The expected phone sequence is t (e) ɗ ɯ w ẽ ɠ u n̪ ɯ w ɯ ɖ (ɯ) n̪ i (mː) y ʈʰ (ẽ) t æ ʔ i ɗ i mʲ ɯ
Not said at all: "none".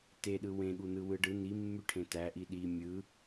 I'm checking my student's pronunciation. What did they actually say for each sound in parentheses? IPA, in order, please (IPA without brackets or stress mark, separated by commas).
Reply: e, ɯ, mː, ẽ